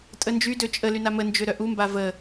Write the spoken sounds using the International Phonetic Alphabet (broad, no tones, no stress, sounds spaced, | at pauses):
tʼ ə n d͡ʒ y d ø t͡ʃʼ ə l y n a m ə n d͡ʒ ø ɾ œ ʔ u m b a v ə